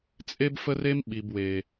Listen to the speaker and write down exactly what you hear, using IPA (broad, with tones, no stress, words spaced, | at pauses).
t͡sʼe˦bfə˦re˦m ɓi˨bwe˨